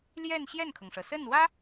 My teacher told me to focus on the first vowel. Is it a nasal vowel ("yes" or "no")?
no